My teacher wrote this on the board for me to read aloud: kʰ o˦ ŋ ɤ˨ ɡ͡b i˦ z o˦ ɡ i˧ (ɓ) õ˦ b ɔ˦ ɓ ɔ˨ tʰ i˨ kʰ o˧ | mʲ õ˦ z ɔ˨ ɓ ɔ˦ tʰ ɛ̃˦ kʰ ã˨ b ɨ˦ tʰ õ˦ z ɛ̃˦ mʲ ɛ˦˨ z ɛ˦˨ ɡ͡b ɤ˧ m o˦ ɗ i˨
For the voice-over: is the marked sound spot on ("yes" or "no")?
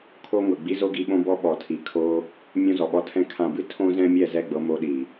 yes